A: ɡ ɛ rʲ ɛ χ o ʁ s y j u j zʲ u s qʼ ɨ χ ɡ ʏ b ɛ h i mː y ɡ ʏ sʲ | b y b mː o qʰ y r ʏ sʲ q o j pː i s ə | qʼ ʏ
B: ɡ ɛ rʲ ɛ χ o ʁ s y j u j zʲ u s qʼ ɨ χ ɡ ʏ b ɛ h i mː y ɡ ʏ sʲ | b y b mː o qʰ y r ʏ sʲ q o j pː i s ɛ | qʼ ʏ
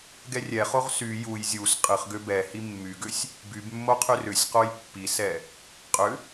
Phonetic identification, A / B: B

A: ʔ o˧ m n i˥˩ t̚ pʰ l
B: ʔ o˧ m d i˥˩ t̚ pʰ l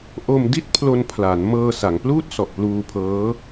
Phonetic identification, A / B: B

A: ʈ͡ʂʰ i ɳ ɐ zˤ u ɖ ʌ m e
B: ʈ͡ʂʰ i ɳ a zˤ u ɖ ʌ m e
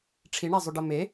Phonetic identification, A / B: B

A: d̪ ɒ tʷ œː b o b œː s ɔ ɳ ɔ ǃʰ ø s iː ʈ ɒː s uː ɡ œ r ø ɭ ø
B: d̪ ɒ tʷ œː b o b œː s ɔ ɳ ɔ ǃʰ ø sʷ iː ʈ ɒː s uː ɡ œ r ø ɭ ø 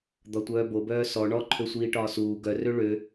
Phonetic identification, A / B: B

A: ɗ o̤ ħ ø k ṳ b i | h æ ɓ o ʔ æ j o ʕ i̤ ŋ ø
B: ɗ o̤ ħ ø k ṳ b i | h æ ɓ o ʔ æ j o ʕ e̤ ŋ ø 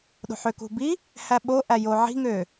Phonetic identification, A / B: A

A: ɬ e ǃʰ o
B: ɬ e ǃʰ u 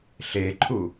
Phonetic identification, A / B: B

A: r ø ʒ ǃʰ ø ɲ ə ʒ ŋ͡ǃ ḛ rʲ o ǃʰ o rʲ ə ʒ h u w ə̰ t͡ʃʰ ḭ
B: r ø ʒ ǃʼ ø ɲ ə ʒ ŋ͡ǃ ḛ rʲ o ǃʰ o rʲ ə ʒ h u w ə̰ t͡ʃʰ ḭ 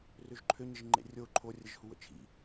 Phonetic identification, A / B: A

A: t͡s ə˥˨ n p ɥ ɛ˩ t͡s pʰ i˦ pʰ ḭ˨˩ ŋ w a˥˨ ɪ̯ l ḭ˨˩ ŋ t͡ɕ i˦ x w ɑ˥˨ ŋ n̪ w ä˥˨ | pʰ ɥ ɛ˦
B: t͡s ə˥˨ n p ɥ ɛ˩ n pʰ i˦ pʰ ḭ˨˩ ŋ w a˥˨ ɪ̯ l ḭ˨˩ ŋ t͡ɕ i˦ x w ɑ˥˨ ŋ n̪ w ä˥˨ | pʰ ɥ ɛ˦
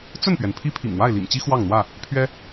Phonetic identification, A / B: B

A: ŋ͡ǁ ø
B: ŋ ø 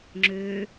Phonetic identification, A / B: A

